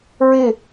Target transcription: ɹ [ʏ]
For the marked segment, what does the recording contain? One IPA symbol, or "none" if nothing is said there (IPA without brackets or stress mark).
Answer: ɪ